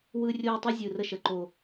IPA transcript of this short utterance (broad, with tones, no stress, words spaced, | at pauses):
wɯ˦ rʲoː˦tˤɯ˦zʲɯ˨rə˦ ʃə˨ǃo˦